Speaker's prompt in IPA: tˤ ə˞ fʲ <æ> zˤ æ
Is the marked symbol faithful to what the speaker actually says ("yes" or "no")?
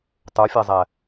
yes